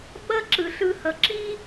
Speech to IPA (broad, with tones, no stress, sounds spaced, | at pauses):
ɓ ʌ˥ ǁ ɯ˩ ɬ ɯ˧ h ʌ˩ ǁ i˥